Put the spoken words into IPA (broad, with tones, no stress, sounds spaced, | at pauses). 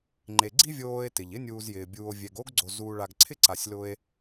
ŋ͡ǃ e˨ ɡ͡ǀ i˥ vʲ oː˦ e̯ t ɪ˩ ʎ ɪ˥ nʲ uː˨ z j ɪː˩ bʲ uː˨ o̯ vʲ ɛ˨ ɡ oː˥ ɡ ɡ͡ǀ o˨ z uː˨ ɭ a˨ ɡ ǀʰ ɪ˥ ǀ a˨ sʲ l ʊ˦ e̯